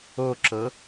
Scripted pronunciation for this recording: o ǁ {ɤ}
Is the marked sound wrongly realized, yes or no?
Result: no